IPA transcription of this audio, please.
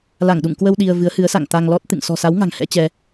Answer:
la˧˩ŋɗṵ˧˨ŋkwə˧w ɗi˧ə̯ vɨ˨˦ə̯hɨ˨˦ə̯sa̰˧˨ŋ t̪a˧ŋlɔ˦˥t̚ t̪ɨ̰˧˨ŋ sɔ̤˨˩sa˨˦wŋa̤˨˩ŋ hɛ̰˧˥t͡ɕɛ˧

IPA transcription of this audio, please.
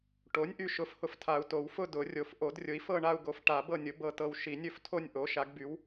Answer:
ʈo˩˥nʲʔy˨ʃʊ˩˥fhʊ˨f tʰa˨u̯to˨˩˦wfʊ˥˨ dʊ˨˩˦rʲo˨f ʔo˨˩˦drʲʊ˩˥i̯ fɤ˥˨ɳa˥˨u̯ɡo˩˥f ʈa˨˩˦bɤ˥˨nʲʊ˩˥ bɤ˥˨tɤ˥˨w ʃi˨˩˦nʲɵ˥˨f tʰo˥˨nʲʔo˩˥ʃa˩˥ɡby˩˥w

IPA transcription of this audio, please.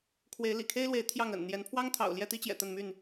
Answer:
kʰwe˨˦ɪ̯lḭ˨˩kʰe˦ɪ̯lwe˨˦ɪ̯ t̪ʰjɑ˥˨ŋə̰˨˩n n̪jɛ˨˦npʰwɑ˦ŋ t̪ʰɑ̰˨˩ʊ̯ljɛ˥˨t̪i˦t͡ɕjɛ̰˨˩ t̪ə˥˨nmy˥˨n

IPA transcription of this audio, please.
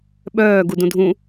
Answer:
ɓœː ɡudũdʱũ

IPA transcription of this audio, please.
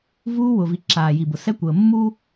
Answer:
vuː˦wʊ˨vi˨ ǁaː˨ji˨bʊ˨ sɛ˦kʷəː˨ mːu˦

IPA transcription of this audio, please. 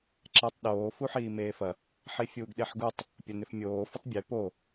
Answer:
ǁɛtˤɗoː fuħiːmeːfɐ | ħifʲuːɡɗeħɡutˤ | pʲɐnʏfmʲoː fʏtˤbʲe po

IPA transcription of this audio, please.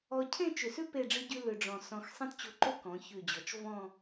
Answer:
ɔ˧cʰẽ˥˧t͡ʃʏ˧˩sʉ˥ pe˥˧ɖ͡ʐɨ˥ɟʉ˥ lʏ˧ɖ͡ʐɔ̃˧˩sɔ̃˧x sˤẽ˥tt͡ɕo˧ǃo˥ kɔ̃˩˧çʉ˧˩d͡ʑɔ˩˧t͡ʃ vɔ̃˥˧

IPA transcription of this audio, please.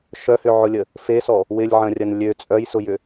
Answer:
ʃœhʏʕʊlʲə | fesɔ | wɪlʲʕɐ̃rʲɐn lʲø t͡sʼœjsʊjʏ

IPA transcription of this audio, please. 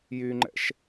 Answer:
jyŋ͡ǃɛ̰ʃ

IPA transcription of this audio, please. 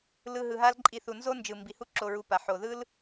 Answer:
lɯ˨ɦɯ˩ɦa˦l ǃʼi˨θu˩nzo˥ nd͡ʒɯ˩mbi˩hu˦ ǁo˨ɹu˨pa˩ ħo˩ðɯ˥l

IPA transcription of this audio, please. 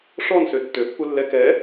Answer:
ʂɔn søtːø pːulːɛ kɛ

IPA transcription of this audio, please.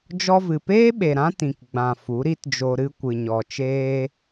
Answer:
d͡ʒɔ˧vɨ˨peː˦ɓe˨ ɾã˦tĩ˨k ɡ͡bã˨ fu˨˦ɾi˦td͡ʒo˧ ɾɨ˧kʷɨ˨ɲɔ˨ t͡ʃeː˧

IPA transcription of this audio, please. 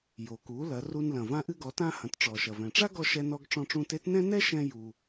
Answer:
jo˩ku˩˧ lɐ˩˧ru˧nlɐ̃˩ vã˧ʔɨ˧ɡɔ˩˧tã˧ hɐ̃˩˧tʈ͡ʂɔ˩ʃɐ˩vɛ̃˩ ʈ͡ʂa˥ɡɔ˧ ʃɛ˧nɔ˧ɡ ʈ͡ʂɔ̃˧ʈ͡ʂũ˧te˧˥tnɛ̃˥ nɛ˥ʃɛ̃˧ ju˩

